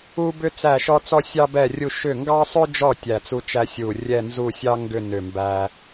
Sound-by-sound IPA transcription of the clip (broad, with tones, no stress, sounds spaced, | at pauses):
u˧ b ʏ˧ t͡s æ˧˩ ʃ ɔ˧ t͡s ɔ˧ sʲ ɑ˧ b ɛ˧˩ rʲ u˧˩ ʃ ʏ˧˩ ŋ ɡ ɑ˧ sˤ ʏ˧ d͡ʒ ɔ˧˩ tʲ æ˧˩ t͡s u˧ t͡ʃ æ˧ sʲ u˧˩ rʲ ɛ˧˩ n z u˧˩ sʲ ɑ˧ ŋ ɡ ʏ˧˩ n ʏ˧˩ m b æ˧